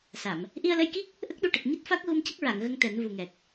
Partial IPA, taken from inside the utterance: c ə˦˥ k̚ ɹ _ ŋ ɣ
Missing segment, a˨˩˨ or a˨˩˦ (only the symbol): a˨˩˨